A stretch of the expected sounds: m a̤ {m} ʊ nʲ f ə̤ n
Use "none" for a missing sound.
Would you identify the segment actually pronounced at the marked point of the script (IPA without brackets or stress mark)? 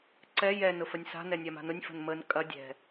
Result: n